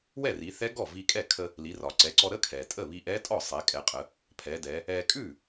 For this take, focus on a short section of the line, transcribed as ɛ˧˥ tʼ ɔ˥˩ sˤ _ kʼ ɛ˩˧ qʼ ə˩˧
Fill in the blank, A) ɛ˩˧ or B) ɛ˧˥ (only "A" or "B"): A